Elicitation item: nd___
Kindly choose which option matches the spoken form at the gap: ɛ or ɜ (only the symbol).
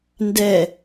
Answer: ɛ